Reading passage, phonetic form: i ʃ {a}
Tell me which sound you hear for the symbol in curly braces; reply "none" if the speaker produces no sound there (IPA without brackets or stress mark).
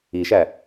æ